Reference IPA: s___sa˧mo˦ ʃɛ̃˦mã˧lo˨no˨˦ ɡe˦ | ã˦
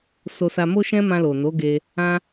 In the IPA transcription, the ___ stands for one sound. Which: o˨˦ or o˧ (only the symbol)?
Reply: o˧